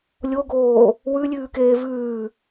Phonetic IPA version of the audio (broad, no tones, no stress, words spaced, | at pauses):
lʲoɡoː | wʉlʲʉːkeː vʉː